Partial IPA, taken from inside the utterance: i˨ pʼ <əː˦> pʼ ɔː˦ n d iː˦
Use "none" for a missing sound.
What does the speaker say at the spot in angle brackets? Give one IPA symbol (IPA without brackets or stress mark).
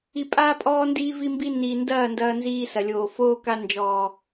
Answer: aː˦